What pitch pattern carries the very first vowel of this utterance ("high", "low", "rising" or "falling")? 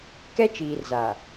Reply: high